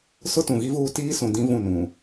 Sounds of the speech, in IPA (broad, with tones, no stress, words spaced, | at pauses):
sʊ˦tũ˨ɣi˦vuː˦ tiː˦sũ˨ dĩ˦vũ˦˨nũ˨